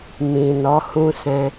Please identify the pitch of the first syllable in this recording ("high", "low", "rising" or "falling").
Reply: low